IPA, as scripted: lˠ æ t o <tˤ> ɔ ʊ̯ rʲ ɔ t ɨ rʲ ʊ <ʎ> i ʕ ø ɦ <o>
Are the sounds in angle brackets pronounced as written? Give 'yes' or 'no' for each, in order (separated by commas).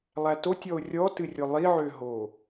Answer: no, no, yes